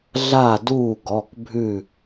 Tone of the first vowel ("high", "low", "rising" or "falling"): falling